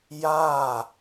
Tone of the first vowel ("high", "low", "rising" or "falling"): falling